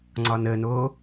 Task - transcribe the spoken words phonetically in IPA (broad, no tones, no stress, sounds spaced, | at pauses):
ŋ͡ǀ ɒ n ə n o